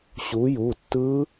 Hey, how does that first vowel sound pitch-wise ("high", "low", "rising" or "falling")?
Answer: rising